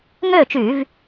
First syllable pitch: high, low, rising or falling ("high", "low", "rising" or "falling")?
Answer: falling